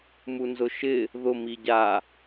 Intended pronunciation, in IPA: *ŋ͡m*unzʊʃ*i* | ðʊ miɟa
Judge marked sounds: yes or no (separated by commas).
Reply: no, no